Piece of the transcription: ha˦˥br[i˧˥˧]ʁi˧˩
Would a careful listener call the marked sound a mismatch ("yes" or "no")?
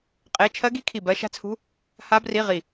no